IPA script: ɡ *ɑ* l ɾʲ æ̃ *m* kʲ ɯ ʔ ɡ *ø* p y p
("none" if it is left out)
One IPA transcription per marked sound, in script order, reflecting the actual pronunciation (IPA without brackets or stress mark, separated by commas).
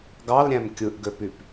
ɑ, m, ø